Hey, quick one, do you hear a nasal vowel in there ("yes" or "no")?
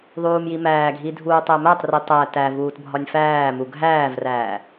no